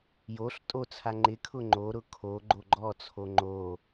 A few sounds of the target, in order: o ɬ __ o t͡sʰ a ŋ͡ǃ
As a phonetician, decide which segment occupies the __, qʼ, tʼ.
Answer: tʼ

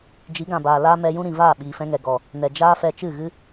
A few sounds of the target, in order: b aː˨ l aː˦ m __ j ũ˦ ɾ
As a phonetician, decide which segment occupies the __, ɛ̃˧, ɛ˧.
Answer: ɛ˧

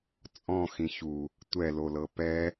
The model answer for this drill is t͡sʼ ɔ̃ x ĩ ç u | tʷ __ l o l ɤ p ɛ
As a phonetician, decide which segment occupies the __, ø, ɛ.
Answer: ɛ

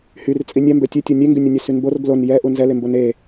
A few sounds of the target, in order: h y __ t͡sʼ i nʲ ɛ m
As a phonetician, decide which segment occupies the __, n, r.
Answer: r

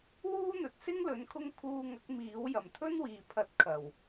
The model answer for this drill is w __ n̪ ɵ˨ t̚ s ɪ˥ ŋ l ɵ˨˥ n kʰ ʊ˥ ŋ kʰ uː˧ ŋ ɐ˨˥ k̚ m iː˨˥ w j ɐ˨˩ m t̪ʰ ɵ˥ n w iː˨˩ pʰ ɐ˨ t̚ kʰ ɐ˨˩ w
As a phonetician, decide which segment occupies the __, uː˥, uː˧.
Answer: uː˥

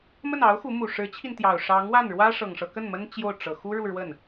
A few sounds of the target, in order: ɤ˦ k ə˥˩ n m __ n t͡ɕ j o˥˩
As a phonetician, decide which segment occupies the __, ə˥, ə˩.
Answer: ə˥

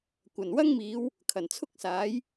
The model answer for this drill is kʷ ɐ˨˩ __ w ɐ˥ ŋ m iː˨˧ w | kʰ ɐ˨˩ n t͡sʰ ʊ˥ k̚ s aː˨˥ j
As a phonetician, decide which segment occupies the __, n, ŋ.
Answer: n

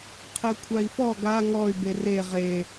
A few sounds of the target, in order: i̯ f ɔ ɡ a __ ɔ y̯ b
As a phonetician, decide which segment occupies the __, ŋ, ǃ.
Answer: ŋ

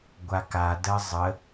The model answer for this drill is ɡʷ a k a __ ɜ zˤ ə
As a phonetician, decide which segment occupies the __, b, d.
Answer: d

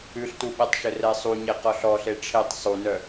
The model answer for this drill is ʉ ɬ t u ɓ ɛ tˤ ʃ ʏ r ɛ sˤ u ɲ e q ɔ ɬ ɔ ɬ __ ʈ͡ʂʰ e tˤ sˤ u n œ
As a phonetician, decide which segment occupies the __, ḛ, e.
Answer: e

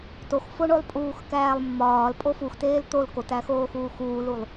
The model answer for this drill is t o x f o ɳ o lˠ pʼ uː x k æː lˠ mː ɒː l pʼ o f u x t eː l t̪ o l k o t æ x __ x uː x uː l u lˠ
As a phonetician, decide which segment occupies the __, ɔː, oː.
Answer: oː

